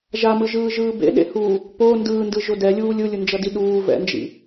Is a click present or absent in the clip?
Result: absent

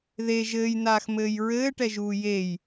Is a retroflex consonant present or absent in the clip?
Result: present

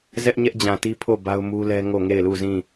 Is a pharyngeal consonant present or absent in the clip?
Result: absent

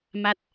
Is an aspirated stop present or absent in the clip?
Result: absent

